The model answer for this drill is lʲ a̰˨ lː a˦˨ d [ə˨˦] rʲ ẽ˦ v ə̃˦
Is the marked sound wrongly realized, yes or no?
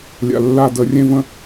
no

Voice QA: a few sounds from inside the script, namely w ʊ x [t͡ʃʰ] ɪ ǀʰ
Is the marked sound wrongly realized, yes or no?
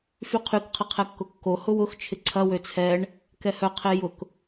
no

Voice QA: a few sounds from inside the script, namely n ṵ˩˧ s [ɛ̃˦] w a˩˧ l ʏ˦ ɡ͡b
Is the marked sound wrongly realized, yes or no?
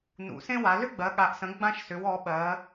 yes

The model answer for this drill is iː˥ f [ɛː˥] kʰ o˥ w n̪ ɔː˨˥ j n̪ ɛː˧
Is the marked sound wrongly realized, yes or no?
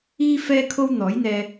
no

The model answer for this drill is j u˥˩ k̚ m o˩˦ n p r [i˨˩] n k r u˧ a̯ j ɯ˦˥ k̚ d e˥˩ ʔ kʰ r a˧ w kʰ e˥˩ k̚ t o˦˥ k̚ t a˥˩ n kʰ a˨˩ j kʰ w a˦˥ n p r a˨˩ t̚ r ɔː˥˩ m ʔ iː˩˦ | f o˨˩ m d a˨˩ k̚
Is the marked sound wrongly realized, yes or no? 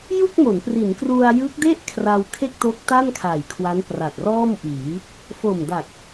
yes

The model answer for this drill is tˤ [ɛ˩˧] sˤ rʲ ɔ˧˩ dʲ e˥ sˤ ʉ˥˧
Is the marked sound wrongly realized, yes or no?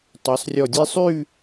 no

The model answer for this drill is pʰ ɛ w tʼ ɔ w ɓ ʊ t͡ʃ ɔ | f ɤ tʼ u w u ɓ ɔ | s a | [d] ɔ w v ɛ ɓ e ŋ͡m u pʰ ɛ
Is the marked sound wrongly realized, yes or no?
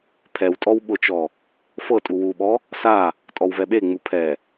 yes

